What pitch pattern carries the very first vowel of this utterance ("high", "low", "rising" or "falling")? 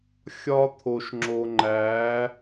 high